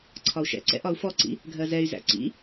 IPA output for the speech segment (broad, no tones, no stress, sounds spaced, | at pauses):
ǀʰ ɒ u̯ ʃ ɛ̰ ǀ ɛ̰ ʔ ɒ u̯ f ɔ ǀ ḭ | ɡʱ ɜ z ɛ y̯ z æ̰ ǀ ḭ